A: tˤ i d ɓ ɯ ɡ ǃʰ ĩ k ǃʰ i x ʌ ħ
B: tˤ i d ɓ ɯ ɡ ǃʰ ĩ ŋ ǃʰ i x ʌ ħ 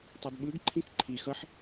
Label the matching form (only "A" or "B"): A